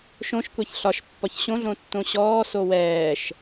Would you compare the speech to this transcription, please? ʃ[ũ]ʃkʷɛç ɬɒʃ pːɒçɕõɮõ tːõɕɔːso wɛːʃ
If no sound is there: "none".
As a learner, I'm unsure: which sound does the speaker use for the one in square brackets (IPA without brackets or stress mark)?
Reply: õ